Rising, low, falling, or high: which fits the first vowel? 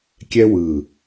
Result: high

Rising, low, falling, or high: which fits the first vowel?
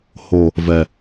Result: low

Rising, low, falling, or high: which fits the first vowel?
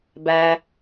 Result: low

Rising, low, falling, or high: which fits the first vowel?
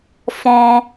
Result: high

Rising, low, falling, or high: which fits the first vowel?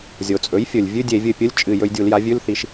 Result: low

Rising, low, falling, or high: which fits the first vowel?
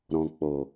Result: low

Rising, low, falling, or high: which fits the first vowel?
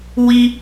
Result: high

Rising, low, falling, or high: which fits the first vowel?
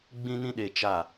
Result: high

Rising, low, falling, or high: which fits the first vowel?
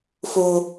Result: high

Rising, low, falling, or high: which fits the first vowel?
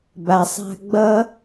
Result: low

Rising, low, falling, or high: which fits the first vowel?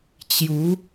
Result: rising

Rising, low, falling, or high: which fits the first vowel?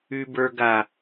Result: low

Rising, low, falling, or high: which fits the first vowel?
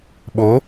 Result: rising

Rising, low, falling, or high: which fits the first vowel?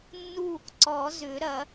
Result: falling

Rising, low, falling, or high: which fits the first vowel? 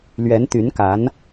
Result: rising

